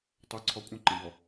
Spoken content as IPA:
tˤœǀʰɔ kʷʼə̃ǃə̃bɔ

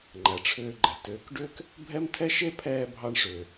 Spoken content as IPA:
ŋ͡ǃæ˨ʈ͡ʂʰʏː˧ɡ͡ǃɛ̤˨ tʏː˨k ɖʏː˦k | bʱɛ˦mtʰɛ˦ ʃe˦pʰɛː˧ bʱɑ˧ɳʂʏː˨

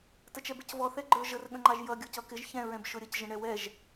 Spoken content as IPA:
tət͡ʃɛbɪcvɔ θɛɡ͡ǃə˞ ʒər ɠə̃ŋ͡ǃɑʒjʌ ɡʲʊcʌkɪʒ çɛ̃ ɹɛ̃bʃʊɾʲəc ʒə̃ɳɛwɛʒ

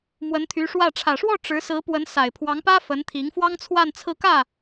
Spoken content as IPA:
mwə˧˥nt̪ʰy˧˥ʂwä˥˩ ʈ͡ʂʰä˨˩ʂwɔ˥˩ ʈ͡ʂɻ̩˧˥ sɹ̩˧˥pwə˧˥n sa˨˩ɪ̯pʰwɑ˧˥ŋpä˥ fə˧˥nt̪ʰi˧˥ŋfwɑ˥ŋt͡sʰwa˥˧n t͡sʰɹ̩˥˧kä˥˩

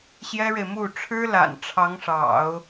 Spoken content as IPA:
ɕjɛ˥ɻe˨ɪ̯mu˥˩ ʈ͡ʂʰɻ̩˥la̰˨˩n ʈ͡ʂʰɑ˧˥ŋʂɑ̰˨˩˦ʊ̯

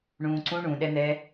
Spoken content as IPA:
ɳũːǀũ ɳũɗɛn̪ɛː

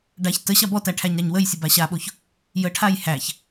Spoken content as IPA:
ɖaç tə ɕabɔtæ ʈʰæɲɾaɲwəjsʲə baɕaɓoç | jəʈʰaj hæç

